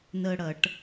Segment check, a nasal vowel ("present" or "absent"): absent